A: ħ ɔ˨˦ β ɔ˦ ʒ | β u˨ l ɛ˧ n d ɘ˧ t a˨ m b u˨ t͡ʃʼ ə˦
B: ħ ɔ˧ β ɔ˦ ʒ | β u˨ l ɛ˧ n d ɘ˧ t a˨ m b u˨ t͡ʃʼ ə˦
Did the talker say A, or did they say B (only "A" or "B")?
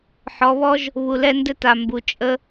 A